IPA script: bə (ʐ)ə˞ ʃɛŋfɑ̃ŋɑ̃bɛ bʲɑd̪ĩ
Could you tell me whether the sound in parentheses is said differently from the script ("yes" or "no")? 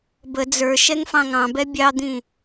yes